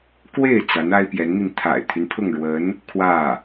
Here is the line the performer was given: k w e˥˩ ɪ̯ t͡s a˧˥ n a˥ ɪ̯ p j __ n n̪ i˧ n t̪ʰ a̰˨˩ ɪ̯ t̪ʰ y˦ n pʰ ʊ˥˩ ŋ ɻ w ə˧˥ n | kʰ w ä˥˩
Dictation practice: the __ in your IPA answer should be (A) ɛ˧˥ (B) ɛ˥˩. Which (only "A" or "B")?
A